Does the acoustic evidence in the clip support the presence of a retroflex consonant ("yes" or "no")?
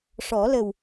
yes